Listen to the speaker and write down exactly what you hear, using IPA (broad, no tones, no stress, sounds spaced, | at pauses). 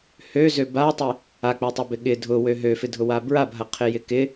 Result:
h ø z ø b a tˤ ɪ | a k͡p œ tˤ ɪ b ɪ ɠ ɪ dʱ ʊ w ø ɦ ø f ɪ dʱ ʊ w a b ɹ a b ɦ ɐ qʰ ɪ j ɪ k ɪ